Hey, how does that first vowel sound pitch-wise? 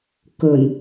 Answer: low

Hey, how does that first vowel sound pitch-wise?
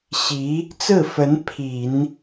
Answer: rising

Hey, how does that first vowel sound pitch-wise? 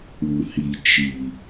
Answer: low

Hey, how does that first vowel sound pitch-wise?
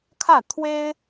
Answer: falling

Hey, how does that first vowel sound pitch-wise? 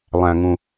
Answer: low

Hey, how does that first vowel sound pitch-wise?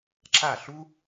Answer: falling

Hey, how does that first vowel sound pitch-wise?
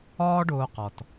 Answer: high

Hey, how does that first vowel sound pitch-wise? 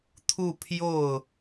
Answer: falling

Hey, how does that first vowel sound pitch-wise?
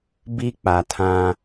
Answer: high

